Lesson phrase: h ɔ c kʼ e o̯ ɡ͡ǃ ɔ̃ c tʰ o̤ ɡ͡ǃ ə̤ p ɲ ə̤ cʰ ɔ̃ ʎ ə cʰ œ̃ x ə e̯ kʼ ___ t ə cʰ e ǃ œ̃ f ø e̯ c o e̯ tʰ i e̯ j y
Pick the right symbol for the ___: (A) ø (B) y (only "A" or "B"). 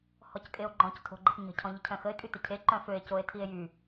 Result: B